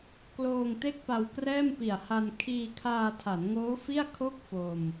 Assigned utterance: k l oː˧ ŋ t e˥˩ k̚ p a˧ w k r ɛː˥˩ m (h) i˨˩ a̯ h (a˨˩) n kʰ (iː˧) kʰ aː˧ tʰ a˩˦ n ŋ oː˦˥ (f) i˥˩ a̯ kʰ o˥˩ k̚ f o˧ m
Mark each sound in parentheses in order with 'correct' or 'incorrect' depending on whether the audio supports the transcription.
incorrect, incorrect, correct, correct

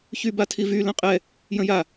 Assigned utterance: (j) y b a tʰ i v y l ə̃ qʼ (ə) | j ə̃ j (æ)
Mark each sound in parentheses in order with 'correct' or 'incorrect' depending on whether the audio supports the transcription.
incorrect, incorrect, incorrect

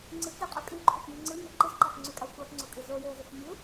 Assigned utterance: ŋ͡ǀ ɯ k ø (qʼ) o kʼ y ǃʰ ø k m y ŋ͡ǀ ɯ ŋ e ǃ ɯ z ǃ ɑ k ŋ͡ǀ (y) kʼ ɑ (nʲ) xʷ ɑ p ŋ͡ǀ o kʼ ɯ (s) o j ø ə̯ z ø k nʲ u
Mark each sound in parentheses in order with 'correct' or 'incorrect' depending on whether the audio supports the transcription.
correct, correct, incorrect, incorrect

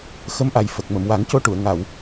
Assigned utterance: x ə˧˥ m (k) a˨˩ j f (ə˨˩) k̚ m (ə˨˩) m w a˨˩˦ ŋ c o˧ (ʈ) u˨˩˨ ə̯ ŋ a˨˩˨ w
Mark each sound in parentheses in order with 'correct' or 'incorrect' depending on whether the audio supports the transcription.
incorrect, correct, incorrect, correct

